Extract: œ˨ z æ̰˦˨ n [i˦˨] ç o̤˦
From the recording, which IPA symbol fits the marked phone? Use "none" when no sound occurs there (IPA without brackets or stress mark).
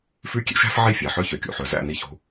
i˦˨